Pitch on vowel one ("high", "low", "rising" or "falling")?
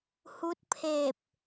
rising